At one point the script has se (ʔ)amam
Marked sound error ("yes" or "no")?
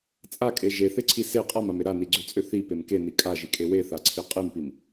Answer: yes